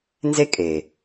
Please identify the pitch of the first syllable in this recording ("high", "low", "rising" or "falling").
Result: high